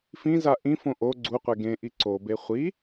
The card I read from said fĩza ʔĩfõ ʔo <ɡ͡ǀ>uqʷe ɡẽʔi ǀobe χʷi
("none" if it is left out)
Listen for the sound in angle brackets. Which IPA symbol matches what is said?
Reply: ɡ͡ǀ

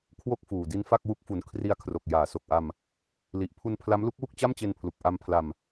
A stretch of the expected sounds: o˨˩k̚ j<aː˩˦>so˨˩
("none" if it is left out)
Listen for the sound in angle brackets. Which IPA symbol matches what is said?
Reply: aː˩˦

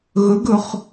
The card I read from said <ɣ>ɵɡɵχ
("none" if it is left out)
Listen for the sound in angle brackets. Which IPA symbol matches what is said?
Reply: ɣ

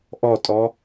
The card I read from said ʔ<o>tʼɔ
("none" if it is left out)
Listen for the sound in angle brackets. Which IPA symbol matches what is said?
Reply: ɔ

